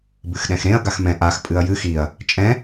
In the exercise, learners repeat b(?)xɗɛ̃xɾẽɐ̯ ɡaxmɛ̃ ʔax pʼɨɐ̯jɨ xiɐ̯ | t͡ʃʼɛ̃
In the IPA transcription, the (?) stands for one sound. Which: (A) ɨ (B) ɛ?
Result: A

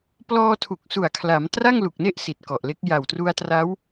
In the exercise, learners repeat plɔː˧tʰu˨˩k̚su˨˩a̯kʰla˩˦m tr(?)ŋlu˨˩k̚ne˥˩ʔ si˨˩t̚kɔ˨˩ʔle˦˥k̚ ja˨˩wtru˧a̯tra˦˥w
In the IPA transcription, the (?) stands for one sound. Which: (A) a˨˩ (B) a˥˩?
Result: B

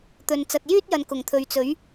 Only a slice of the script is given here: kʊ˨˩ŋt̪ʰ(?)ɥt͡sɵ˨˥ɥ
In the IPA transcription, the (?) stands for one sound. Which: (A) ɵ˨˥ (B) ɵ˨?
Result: B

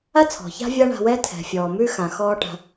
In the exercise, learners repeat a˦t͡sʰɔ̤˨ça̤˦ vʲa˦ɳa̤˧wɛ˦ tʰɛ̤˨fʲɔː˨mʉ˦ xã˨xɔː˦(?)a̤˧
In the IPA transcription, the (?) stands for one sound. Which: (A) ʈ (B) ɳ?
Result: A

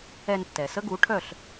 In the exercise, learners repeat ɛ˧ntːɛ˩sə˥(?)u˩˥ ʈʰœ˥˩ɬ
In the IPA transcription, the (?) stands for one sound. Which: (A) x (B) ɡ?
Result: B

